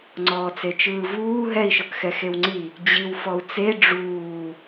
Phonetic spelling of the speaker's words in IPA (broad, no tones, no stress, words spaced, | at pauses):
ŋ͡ǀɔːt͡set͡ʃɯːvuː ɦɛi̯ʃɤkxɛ xewŋ͡ǀi | d͡ʑiw fɔu̯t͡se ɖ͡ʐuː